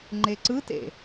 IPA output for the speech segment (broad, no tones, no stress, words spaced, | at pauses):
ŋ͡ǃeǀɯtḛ